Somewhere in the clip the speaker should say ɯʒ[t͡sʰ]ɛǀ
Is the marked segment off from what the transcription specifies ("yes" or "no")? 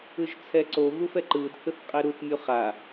no